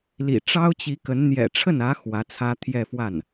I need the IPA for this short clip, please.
lḭ˨˩ ʈ͡ʂɑ˥ʊ̯t͡ɕi˧˥kə˧˥n n̪jɛ̰˨˩ʈ͡ʂʰə˥˩nä˧˥ xwä˧˥t͡sʰä˥ t̪ʰjɛ˥˧fwa˥˩n

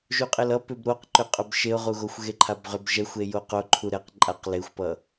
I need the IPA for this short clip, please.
ʒuqʼelʌ pʏbɾoqǃʏ qʼœbʃeʊ̯ʁuɣoxʷ ɣeǃʰabʁʏb ʒɛxʷe joqo ǃʰuɾɛq ǃʼaq lexʷpʌ

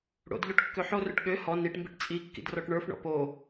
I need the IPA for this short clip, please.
ɽo̰dʎoʈ kːøħorøʈ ɠø hɔ niʈmbiʈ t͡sʼi kːḭdrɔʈɳə˞fɳɔ̰ po

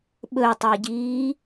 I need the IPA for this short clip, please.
ɓɵtˤeɟiː

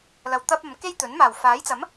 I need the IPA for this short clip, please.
lɐ˨wt̪ɐ˥p̚ɐ˨˧m ke˥jt̪ɵ˨˥n maː˨˩wfaː˨˥jt͡sɐ˨˥m

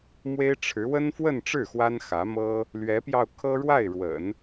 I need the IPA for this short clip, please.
mwe˥ɪ̯ʈ͡ʂʰɻ̩˧˥ wə˥nfwə˥˧nʈ͡ʂɻ̩˥˩ xwa˥nxä˧˥mɤ˥ | lɥɛ˧˥pjɑ˧ʊ̯kʰɤ˥ ɻwa˥˩ɪ̯ɻwə̰˨˩˦n

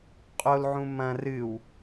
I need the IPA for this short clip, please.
qʼol ʕũmɐ̃ rɨw

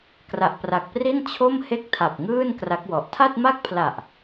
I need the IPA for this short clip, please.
kra˨˩ʔpra˨˩k̚pri˥˩n t͡ɕʰo˥˩m he˥˩k̚tʰa˨˩p̚ŋɯː˥˩n kra˦˥k̚wɔ˨˩ʔ tʰa˥˩t̚ma˥˩k̚pʰla˨˩ʔ

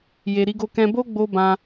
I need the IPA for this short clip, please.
je˨ɾi˧ɡo˧kɛ̃˧ bo˦ɡ͡bo˧ bã˦

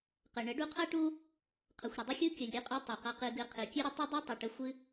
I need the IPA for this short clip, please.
qə˨ ɳə˨˦ɖu˧qʰʌ˦ʈu˦ | qʰʌ˨xʷɾə˨dˤə˦xʲu˦ kʲʌ˨lʲɾʲɨ˦qʼʉ˧ tˤi˨qʌ˧qɨ˧ɡɨ˧ qʰɨ˨kʲʉ˦ɾə˦ tˤi˦dˤi˦tˤɨ˨ʈə˧ xʷɨ˧

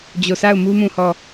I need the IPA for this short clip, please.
d͡ʑo˨sʰa˦˨ʊ̯mu˦ mũ˦˨hɔ˦˨

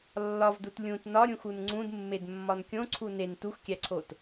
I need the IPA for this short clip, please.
lːɒvdut lʲũt nɒɾʲũxun ŋ͡ǀũdmːedmːɒn kʲõǀʰu nen tuxkʲæǀʰot

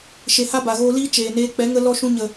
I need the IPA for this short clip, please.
ʃe˨ha˦ ba˨ɣoː˧liː˦ t͡ʃeː˨neː˧ k͡pɛ˨˦ŋə˧ lɔ˧ʃũ˧ɲə˨

